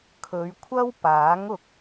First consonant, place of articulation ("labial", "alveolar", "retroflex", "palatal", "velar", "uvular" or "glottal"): velar